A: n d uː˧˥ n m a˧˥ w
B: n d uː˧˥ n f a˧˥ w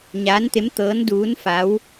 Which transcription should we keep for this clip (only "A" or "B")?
B